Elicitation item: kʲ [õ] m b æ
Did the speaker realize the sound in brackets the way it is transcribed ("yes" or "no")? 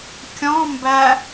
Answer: no